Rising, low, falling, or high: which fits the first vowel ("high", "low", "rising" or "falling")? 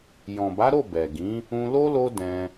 low